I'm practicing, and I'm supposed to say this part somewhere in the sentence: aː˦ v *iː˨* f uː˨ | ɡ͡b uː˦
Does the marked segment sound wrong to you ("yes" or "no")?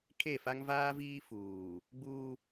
yes